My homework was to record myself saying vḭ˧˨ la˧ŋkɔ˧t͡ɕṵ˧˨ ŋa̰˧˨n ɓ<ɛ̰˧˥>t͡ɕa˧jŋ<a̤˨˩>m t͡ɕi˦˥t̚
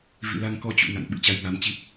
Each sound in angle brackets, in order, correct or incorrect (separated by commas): incorrect, incorrect